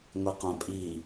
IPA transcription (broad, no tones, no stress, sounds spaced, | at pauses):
ŋʷ i q œ̃ pʼ i